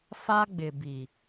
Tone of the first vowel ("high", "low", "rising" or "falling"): high